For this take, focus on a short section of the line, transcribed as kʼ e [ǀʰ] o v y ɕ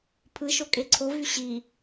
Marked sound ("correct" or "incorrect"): correct